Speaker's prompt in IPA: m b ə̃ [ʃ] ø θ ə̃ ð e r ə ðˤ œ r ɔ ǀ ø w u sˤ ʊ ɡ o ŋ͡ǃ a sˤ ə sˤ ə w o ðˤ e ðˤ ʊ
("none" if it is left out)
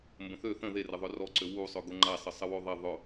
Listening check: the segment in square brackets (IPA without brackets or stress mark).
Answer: θ